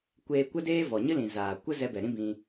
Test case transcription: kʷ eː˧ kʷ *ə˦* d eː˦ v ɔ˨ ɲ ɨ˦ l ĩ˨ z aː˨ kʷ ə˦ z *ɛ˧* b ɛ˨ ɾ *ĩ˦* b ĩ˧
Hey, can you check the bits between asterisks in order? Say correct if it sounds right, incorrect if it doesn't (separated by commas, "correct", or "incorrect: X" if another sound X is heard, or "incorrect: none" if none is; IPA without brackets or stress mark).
correct, correct, correct